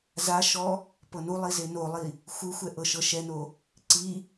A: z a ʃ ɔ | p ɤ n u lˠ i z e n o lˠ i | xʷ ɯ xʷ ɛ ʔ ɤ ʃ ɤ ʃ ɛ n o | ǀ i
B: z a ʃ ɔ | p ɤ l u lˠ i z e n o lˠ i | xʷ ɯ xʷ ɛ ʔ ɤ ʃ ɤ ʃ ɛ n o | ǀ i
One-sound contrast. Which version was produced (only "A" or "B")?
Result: A